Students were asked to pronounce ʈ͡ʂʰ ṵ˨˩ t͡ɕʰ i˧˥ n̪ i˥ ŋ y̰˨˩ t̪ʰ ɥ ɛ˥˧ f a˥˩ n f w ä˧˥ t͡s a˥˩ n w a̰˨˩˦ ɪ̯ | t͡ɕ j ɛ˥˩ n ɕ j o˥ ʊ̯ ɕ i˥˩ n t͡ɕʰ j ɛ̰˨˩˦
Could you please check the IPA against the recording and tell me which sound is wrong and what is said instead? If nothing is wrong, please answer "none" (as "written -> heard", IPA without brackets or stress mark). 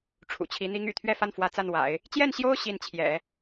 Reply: none